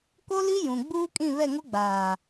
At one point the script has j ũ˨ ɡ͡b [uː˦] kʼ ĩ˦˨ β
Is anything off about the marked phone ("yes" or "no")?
no